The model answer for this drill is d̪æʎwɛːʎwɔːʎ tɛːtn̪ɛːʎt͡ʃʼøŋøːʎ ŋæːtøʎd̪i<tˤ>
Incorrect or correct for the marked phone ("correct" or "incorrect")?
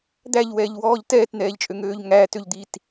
incorrect